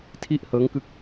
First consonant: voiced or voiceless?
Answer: voiceless